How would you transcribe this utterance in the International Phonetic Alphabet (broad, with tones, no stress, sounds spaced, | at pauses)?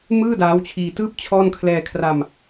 m ɯː˥˩ d aː˦˥ w t͡ɕʰ iː˧ t ɯː˥˩ p̚ t͡ɕʰ ɔː˥˩ n kʰ l ɛː˧ kʰ r a˧ m